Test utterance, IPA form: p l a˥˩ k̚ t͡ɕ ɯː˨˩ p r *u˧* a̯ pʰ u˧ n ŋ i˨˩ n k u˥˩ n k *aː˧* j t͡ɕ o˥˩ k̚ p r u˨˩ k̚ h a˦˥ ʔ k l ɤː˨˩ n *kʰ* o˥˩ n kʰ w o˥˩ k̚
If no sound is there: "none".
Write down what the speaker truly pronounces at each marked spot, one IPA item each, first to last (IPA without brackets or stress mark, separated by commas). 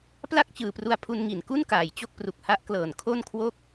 u˧, aː˨˩, kʰ